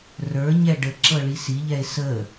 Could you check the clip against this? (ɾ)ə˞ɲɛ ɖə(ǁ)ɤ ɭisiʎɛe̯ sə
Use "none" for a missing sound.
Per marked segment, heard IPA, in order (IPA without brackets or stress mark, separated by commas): r, ǁ